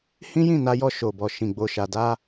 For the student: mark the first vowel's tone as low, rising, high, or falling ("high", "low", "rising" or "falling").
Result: high